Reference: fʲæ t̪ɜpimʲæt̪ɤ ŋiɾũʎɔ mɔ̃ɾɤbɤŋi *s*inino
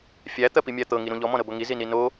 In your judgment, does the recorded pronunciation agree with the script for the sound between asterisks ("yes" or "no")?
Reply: no